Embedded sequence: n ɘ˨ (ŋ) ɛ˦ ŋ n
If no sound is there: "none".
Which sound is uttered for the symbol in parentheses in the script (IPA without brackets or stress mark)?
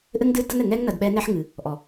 ŋ